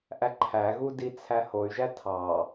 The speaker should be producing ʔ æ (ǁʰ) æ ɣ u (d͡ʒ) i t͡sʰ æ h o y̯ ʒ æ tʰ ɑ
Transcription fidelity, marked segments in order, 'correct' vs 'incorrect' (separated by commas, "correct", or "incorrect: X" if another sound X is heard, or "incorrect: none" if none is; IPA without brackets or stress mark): incorrect: ǃʰ, incorrect: d